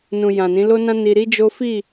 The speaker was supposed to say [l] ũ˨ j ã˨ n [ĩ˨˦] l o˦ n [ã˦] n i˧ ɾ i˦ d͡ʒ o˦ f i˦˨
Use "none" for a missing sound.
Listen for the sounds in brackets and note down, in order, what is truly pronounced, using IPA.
n, ĩ˨˦, ã˦

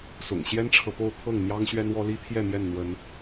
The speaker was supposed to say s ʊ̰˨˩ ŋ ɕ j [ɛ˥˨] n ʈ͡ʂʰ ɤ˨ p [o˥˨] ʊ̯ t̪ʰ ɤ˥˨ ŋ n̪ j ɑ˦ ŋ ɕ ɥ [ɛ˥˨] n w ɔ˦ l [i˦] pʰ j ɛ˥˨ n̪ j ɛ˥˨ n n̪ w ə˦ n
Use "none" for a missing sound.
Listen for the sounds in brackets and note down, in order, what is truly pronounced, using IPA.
ɛ˦, o˥˨, ɛ˦, i˦

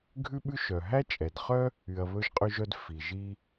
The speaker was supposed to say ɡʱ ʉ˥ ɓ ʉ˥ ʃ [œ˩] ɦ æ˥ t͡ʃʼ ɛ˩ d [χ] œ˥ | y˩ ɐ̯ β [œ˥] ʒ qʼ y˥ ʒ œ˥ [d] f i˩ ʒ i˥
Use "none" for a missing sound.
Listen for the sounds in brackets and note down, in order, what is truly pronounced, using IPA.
œ˩, χ, ɵ˥, d

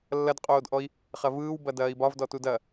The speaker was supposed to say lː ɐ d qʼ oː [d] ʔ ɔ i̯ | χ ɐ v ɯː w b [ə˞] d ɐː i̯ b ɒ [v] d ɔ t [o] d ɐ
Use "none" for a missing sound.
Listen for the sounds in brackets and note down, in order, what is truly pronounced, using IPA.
d, ɐ, v, u

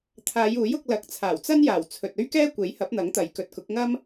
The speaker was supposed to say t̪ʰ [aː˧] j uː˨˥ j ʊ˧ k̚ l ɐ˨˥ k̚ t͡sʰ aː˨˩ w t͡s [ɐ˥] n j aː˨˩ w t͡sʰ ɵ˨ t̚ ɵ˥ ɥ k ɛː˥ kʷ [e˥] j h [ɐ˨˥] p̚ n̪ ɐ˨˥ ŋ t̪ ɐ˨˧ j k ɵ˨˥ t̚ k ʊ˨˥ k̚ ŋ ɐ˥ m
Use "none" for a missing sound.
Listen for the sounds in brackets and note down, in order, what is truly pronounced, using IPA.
aː˨˧, ɐ˥, e˨˥, ɐ˨˥

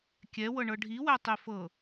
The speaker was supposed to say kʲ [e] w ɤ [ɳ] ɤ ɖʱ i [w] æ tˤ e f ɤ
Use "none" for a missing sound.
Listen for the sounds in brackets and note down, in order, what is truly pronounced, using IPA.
ɛ, ɳ, w

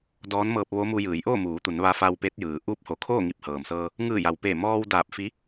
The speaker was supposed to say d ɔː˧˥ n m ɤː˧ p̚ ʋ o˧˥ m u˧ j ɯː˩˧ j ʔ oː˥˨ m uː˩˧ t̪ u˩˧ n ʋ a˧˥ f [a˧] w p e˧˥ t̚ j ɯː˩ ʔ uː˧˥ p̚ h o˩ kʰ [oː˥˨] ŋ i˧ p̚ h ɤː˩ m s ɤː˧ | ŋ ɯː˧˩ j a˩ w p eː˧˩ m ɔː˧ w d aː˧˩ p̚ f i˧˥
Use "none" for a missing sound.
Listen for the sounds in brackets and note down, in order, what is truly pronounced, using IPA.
a˧, oː˥˨

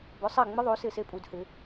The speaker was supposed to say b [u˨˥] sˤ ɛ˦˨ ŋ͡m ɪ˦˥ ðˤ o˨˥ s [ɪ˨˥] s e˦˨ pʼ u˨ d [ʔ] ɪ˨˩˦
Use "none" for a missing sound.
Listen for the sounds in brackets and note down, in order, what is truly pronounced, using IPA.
ʊ˨˥, ɪ˦˨, h

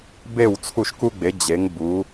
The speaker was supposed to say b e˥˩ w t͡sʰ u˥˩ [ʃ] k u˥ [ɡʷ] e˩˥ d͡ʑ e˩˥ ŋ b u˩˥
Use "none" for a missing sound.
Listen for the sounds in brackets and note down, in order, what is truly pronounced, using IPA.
ʃ, ɡ͡b

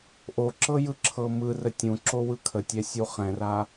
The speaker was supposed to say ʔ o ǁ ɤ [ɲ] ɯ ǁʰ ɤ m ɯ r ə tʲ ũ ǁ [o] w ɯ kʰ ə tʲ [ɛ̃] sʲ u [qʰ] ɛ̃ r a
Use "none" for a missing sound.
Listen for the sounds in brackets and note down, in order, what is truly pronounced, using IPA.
j, o, ɛ, χ

